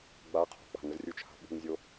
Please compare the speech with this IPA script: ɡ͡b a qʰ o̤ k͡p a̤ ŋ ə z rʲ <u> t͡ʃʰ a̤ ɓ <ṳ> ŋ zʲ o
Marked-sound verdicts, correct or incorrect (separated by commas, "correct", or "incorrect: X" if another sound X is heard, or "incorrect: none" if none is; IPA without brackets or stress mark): correct, correct